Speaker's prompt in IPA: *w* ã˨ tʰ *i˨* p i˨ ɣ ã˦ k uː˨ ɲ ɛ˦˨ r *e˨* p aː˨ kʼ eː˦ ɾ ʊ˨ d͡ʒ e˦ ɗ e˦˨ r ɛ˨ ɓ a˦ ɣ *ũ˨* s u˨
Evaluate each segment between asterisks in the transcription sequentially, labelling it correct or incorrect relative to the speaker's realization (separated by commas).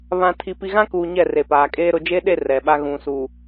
incorrect, correct, correct, correct